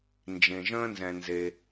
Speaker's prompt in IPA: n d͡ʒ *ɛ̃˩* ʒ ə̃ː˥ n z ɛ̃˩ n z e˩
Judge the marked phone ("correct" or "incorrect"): incorrect